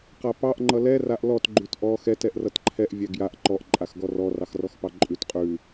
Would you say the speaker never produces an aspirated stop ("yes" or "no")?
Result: no